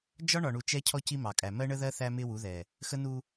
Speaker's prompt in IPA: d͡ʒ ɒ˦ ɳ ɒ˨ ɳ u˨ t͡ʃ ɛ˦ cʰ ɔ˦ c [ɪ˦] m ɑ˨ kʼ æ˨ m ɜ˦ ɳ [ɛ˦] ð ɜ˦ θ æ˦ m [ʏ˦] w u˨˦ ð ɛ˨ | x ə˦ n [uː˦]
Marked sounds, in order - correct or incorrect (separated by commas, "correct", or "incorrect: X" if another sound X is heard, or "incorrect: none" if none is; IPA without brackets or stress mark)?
incorrect: i˦, incorrect: ə˦, incorrect: ɪ˦, incorrect: u˦